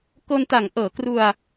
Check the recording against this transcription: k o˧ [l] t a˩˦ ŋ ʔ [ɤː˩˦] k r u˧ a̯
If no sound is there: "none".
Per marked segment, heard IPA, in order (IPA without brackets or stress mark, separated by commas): n, ɤː˩˦